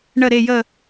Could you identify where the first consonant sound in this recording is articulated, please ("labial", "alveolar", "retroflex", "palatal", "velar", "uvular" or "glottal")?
retroflex